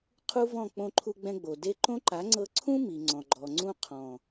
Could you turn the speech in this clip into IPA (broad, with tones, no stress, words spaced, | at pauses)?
qʰu˦vɔ̃˦˨ k͡põ˧ǃʰu˧ɡ͡bɛ̃˧ɡ͡bo˨ de˧ǃõ˦ǃa˨˦ŋ͡ǀɤ˧ ǀʰũ˦mi˨ŋ͡ǀɔ̃˨ɡ͡ǃɔ˨ ŋ͡ǀũ˧qʰɔ̃˨